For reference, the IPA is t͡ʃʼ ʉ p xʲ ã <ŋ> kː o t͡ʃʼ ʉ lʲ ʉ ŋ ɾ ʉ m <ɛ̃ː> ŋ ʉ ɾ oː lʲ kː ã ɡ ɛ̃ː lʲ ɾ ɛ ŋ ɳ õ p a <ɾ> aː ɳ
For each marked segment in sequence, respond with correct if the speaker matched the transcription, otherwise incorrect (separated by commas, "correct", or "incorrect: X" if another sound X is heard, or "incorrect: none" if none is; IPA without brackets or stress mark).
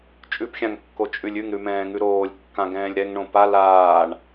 correct, correct, incorrect: l